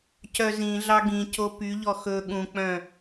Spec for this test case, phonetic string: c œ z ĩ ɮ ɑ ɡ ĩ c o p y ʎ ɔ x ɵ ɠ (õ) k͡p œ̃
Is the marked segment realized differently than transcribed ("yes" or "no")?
yes